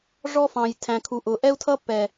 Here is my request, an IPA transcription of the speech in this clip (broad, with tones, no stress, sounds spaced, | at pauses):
ʐ ɔ˦ f ɑ̃˨ j tʰ æ̃˨ kʰ u˨ ʔ ʊ˨ ʔ ɛ˦ u̯ tʰ ʌ˦ pː ɛ˨